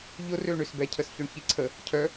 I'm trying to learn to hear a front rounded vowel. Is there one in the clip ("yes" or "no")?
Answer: yes